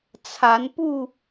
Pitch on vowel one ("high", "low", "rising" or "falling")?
rising